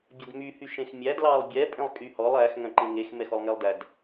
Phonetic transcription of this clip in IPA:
bʲ ɛ d m y h y ʃ ẽ x mʲ æ d l ɑ lˠ bʲ ɛ pʼ ẽ lˠ kʼ y h ɔ lˠ æ x ŋ œ̃ ǃ ẽ ŋ e x m ɛ x ɔ lˠ ŋ ɛ lˠ d æ d

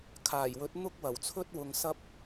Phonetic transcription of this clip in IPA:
kʰ aː˨˩ j w ɵ˨˥ t̚ n̪ ʊ˥ k̚ w ɐ˨˩ w t͡sʰ ɵ˥ t̚ w ʊ˨ ŋ s ɐ˧ p̚

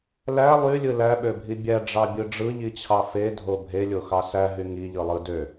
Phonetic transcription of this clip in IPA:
l æ lˠ y lʲ ɯ l æ ɓ ø bʱ i bʲ æ ɖ͡ʐ ɑ bʲ ɯ ɖ͡ʐ ɯ ʎ i t͡ɕʰ ɑ f e dʱ o bʱ e lʲ o x ɑ s æ ɦ y ŋ i ʎ ɯ lˠ ɯ d ø

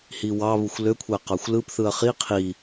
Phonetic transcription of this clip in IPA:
h i w ɑ β u xʷ l ø kʷʰ æ q ɑ xʷ l ɯ p θ ɯ ɐ̯ χ i qʰ i

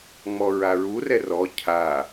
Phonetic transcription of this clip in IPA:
ŋ͡m ɔ ɹ a ɹ u r ɛ r ɔ cʰ a

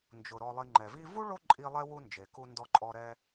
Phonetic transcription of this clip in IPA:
n d͡ʒ ʊ˩ ɾ ɔ˨ lˠ i˨ ŋ͡ǃ ɛ˩ v i˦ v u˥ ɭ o˦ ǃʼ i˦ lˠ ɛ˥ w u˦ n d͡ʒ e˩ k u˨ n d ɔ˨ ǃʼ ɔ˨ ɾ ɛ˦

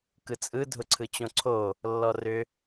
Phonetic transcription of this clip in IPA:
k ɯ t͡sʼ ɯ dʱ ʊ ǀʰ ɯ t͡ɕ õ ǀʰ o | lː ɔ r ʏ

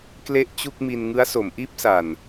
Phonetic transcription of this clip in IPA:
k l e˥˩ ʔ t͡ɕ u˥˩ k̚ m i˧ n ŋ ɯ˦˥ a̯ s o˩˦ m ʔ iː˥˩ p̚ s a˨˩ n

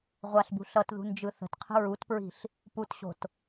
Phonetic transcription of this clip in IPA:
ʁʷ a ɬ b ṳ ɬ ʌ t ð ṳ n d͡ʒ ɯ θ ə̤ t qʰ ə̤ ɹ u t p ɹ i̤ ɬ | p u t ɕ o̤ t

